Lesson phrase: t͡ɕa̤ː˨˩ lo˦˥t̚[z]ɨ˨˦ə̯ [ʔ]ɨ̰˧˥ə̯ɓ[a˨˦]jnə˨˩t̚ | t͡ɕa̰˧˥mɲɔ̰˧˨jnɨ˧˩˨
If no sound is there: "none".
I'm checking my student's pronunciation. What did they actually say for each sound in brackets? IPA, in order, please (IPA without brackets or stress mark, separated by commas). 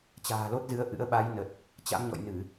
z, ʔ, a˨˦